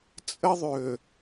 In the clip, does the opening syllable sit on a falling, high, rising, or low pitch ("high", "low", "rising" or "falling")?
high